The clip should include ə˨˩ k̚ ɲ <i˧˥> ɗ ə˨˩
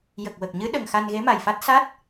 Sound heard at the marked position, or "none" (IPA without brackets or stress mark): ɨ˧˥